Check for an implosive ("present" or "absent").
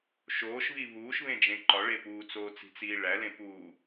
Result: absent